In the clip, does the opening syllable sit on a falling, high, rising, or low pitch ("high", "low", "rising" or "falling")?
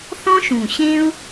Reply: high